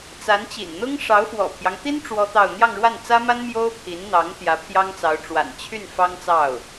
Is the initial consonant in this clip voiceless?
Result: yes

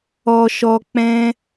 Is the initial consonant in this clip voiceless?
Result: yes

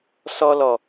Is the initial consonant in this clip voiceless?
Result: yes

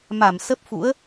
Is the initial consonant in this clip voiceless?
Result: no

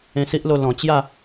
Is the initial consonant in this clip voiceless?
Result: yes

